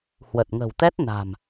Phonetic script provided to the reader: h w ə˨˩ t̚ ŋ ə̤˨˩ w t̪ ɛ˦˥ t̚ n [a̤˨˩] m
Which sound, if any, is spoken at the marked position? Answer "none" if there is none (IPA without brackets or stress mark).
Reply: a̤˨˩